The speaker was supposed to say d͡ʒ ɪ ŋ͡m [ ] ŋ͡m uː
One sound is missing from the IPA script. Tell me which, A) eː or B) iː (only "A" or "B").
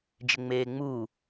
A